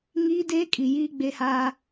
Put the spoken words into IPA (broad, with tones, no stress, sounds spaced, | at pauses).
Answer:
ŋ iː˦ d eː˦ kʼ i˨ j iː˦ ɡ͡b e˦ h a˦